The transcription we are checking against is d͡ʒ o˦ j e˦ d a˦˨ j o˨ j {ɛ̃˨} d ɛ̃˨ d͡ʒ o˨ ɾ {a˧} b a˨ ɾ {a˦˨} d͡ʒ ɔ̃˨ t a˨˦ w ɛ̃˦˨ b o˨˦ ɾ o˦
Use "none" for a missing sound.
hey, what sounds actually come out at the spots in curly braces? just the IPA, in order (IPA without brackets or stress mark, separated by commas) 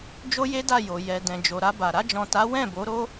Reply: ɛ˨, a˧, a˧